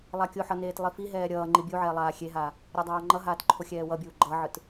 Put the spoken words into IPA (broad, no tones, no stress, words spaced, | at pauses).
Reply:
lˠakʲoħʌ neːtlˠifiɦɛː ɾʲʌː ŋ͡ǃibʲuʕɛː lˠaːxʲeɦaː | ɾʲʌdˤaːŋ͡ǃʌɦaːt ǃʰoxʲɛːwʌbʲuː ɡ͡ǃʌʕɯt